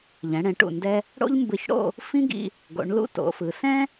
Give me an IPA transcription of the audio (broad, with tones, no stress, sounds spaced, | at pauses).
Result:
ʎ ɛ̃˩˧ ɽ ɛ̃˩˧ ʈ ṵ˧˩ n d ɛ˧ | ɽ o̰˥ ʎ m b ɯ˧ ç ɽ o̰˥˧ | f ĩ˥ ɡ ḭ˧ | ɡ o̰˩˧ ɳ l ṵ˥ t o̰˩˧ f ɯ˩˧ s ɛ̃˥